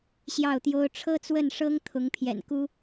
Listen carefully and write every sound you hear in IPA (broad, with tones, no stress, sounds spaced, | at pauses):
ɕ j ɑ˥˨ ʊ̯ t̪ j o˦ ʊ̯ ʈ͡ʂʰ ɤ˦ t͡s w ə˥˨ n ʂ ɤ˦ ŋ t̪ʰ ʊ˨˦ ŋ pʰ j ɛ̰˨˩ n k u˦